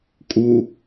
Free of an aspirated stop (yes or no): yes